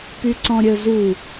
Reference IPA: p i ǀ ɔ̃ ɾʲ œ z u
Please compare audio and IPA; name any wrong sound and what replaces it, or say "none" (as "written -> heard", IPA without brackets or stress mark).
i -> y